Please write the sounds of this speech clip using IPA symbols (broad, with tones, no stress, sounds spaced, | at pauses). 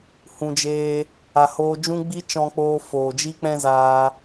h ũ˨ d͡ʒ eː˧ | a˨ h oː˧ d͡ʒ ũ˦ ɡ͡b i˦ t͡ʃ ɔ̃˧ k͡p oː˧ f oː˨ d͡ʒ i˦ k͡p ɛ̃˦ z aː˧